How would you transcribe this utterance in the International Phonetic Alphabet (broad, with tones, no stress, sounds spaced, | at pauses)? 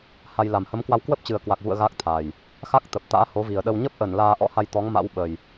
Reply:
h a˧ j l a˨˩ m h ə˨˦ m k w a˧ w k w ə˦˥ p̚ t͡ɕ ɨ˨˩ ə̯ k w a˨˩ k̚ v ṵ˧˨ ə̯ ɣ a˦˥ k̚ t̪ʰ a˨˩ j | x a˦˥ k̚ t̪ ə˨˩ p̚ t̪ a̰ː˧˥ h o˨˦ v i˨˩ ə̯ ɗ ə˧ w ɲ ə˦˥ p̚ ʔ ə˧˩ n l aː˧ ʔ ɔ̰˧˥ h a˧ j t̪ ɔ˨˦ ŋ m a̰˧˥ w ɓ ə˨˩ j